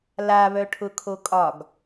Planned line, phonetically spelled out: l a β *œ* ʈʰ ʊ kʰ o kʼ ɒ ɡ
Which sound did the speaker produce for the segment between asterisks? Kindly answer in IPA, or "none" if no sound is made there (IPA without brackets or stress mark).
œ